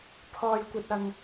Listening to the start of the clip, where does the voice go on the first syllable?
low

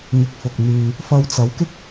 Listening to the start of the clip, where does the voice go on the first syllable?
low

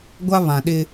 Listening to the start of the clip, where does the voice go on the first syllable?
high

